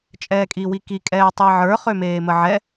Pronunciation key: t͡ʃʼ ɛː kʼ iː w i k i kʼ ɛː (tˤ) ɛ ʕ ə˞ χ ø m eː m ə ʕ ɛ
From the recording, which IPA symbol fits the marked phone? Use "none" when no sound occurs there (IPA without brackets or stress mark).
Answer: tˤ